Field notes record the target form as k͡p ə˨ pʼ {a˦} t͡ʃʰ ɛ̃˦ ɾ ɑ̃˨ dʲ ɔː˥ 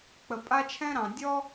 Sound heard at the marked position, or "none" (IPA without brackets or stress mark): a˦